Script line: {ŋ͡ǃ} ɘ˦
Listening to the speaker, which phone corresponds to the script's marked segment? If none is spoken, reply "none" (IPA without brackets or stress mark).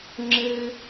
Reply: ŋ͡ǁ